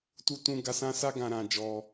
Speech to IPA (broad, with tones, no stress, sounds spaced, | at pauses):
t u˦ t ũ˦ ɡ a˧ s ã˦ s a˦ ɡ ã˧ ɾ ã˧ d͡ʒ ɔ˧